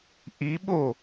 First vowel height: high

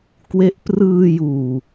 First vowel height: mid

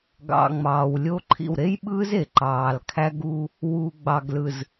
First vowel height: low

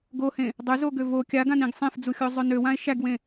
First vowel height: mid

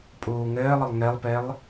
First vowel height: high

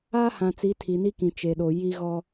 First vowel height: low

